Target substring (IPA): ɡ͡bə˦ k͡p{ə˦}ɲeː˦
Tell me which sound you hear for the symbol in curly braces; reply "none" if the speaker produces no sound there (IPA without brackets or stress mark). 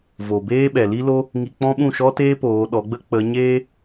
ə˨˦